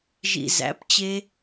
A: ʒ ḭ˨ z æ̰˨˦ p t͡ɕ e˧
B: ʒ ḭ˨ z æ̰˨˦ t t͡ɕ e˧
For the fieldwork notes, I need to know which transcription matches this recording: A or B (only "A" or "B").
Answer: A